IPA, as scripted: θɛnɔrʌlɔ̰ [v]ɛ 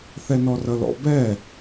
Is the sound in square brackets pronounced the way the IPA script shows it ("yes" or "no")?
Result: no